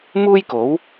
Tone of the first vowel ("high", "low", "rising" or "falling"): high